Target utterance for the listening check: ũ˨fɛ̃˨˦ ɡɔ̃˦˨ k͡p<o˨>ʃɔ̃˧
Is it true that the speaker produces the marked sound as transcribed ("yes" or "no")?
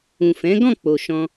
yes